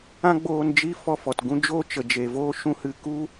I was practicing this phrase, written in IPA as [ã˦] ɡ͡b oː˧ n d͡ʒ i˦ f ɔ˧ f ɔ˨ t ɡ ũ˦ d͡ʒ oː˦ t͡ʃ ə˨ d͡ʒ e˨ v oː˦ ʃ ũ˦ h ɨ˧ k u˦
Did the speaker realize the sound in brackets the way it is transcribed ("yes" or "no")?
yes